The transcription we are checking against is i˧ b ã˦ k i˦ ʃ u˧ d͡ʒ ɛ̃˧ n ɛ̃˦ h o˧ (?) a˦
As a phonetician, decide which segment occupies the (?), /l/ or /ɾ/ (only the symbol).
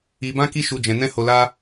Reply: l